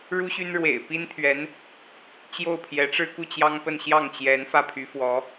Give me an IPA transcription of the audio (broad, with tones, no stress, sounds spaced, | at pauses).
ɻ u˥ ɕ y˥ n ɻ w ḛ˨˩ ɪ̯ p i˥ n t̪ʰ ɥ ɛ˧˥ n | t͡ɕ j o˥˩ ʊ̯ pʰ j ɛ˧˥ ʈ͡ʂ ɻ̩˥ k u˥˩ t͡ɕ j ɑ˥ ŋ p ə˥˧ n ɕ j ɑ˥˩ ŋ t͡ɕ j ɛ˧˥ n f ä˥˩ pʰ y˧˥ f w ɔ˧˥